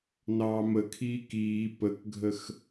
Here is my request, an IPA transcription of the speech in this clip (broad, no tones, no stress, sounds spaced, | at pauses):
n ɑː m ə kʰ iː k iː p ə k ɡʱ ə x